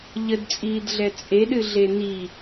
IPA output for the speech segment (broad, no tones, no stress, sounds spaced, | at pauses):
ʎ ə d t͡sʼ iː d ɮ ɛ t͡sʼ e ɗ ɨ ɮ e n i